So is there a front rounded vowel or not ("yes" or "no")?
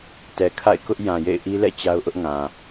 no